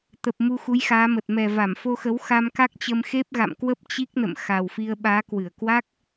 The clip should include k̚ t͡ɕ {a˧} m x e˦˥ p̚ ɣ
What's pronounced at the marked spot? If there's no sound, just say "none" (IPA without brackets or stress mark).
ə˧